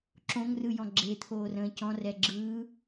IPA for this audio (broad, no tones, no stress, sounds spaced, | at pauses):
ǁ õ ŋ r ɯ j ɔ̃ ɡ͡ǁ e t̪ʰ oː r ə̃ː c ɔ̃ r ɛ ɡ͡ǁ ɯː